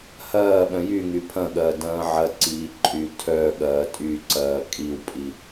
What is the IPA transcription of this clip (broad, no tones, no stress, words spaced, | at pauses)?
hɐː ɓœ̃jyŋy pʰɐ̃ ɠɐːdɐ̃ːʕɐǀiː ǃʼy tʰœɠɐː tʼyǀɐː kʼiwpʼi